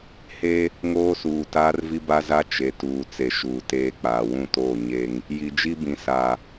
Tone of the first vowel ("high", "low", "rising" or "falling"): high